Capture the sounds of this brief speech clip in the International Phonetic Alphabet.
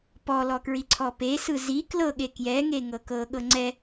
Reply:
p ɔ l ɔ k ɹ i ǀʰ ɔ p e s ɯ z i k l ɤ ɠ e k j ɛ ŋ e ŋ ɤ k ɤ ɠ ɤ ŋ͡ǀ ɛ

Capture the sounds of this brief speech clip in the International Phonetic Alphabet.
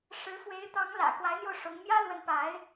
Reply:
ʂ ɻ̩˧˥ f w e˧˥ ɪ̯ t̪ ɑ˧˥ ŋ l ä̰˨˩ k w a˧˥ ɪ̯ n̪ j o˧ ʊ̯ ʂ ʊ˧˥ ŋ m j ä˥ l w ə˧˥ n p a˧˥ ɪ̯

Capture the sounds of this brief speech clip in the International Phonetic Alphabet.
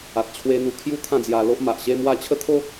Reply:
a˨ t̚ t͡ɕʰ w e˧ n̪ u˧ kʰ j u˦ t̪ʰ ã˥˧ d͡z j a˧ l o˦ ʔ m a˨ ʔ ɕ e˥˧ m w a˥˧ t͡ɕʰ ə˦ t̪ʰ o˦

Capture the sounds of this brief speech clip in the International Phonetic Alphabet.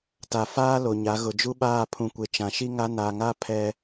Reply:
t a˨ f aː˦ l o˨ ɲ a˨˦ ɣ ʊ˨ d͡ʒ u˦ ɓ aː˦˨ pʰ ũ˨ kʷ e˨ t͡ʃ ã˨ ʃ i˦ ŋ a˦ n a˨ ŋ a˦ pʰ ɛ˦

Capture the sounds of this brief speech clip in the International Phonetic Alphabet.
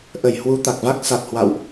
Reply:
ʔ ə˧˩ j h w u˨˦ t̪ a˨˩ k̚ v a˦˥ k̚ s a˨˩ t̚ h w a̰˧˨ w ʔ

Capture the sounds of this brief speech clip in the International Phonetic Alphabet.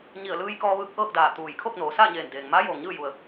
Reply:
ɲ i˧˩ ə̯ l ɯː˧ j k ɔː˧ ʋ ɯː˧ k̚ ʔ ɤː˥˨ k̚ d aː˧˩ t̪ uː˧˩ j kʰ o˥˨ k̚ n oː˩˧ s aː˥˨ ɲ eː˧˩ n d eː˩ ŋ m aː˧˥ j oː˩ ŋ ɲ ɯː˥˨ j u˩ ə̯

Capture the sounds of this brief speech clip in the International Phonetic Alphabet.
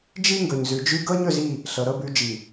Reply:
d͡ʒ i˦ ŋ ɡ ɵ˨ ɲ z ʉ˨ d͡ʒ ʉ˦ ɡ ɤ˦ ɲ ɵ˦˨ z i˦˨ | ɬ ɤ˨ ɾ ɤ˦ b ʉ˨˦ d͡ʒ i˨

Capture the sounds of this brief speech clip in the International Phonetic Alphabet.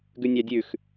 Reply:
ɡ ʉ nʲ ɑ dʲ ʉ x

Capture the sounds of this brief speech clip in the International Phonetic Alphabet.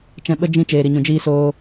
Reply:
t͡ʃ ɛ̃˧ ɓ ə˦ d͡ʒ ĩ˧ t͡ʃ eː˨ ɾ i˨ ɲ ũ˨ d͡ʒ iː˧ s oː˧

